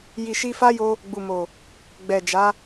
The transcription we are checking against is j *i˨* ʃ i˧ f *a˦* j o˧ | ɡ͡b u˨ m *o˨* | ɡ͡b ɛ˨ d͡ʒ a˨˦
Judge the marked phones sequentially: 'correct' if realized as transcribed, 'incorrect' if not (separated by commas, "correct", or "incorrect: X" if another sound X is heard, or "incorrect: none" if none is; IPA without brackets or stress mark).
correct, correct, correct